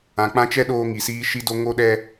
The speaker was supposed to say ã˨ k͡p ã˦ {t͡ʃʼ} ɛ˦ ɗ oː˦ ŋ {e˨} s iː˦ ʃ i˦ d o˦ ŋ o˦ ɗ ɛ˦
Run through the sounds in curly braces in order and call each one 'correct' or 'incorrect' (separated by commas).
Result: incorrect, incorrect